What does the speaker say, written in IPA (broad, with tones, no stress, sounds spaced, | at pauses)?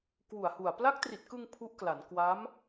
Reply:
k w u˨˩ a̯ h u˨˩ a̯ p l a˦˥ k̚ t r i˨˩ t̚ k ɯ˧ ŋ pʰ u˦˥ ʔ k l a˩˦ n k w a˦˥ m